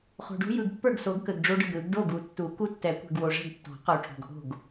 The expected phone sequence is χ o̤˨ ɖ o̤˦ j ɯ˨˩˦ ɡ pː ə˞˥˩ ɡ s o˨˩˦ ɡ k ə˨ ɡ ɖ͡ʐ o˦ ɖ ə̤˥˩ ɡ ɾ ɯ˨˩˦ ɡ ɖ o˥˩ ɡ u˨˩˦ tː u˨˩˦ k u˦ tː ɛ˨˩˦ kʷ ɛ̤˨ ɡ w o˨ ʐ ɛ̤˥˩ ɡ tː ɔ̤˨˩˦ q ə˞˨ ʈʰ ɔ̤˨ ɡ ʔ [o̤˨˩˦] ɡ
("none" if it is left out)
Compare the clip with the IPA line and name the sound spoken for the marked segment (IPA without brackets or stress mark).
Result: o̤˥˩